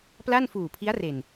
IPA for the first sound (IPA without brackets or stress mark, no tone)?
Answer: p